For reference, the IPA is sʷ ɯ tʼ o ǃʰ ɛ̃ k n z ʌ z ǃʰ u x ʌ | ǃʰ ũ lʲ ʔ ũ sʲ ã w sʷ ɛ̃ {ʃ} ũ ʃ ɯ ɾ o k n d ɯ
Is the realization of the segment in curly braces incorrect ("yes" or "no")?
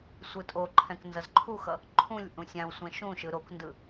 no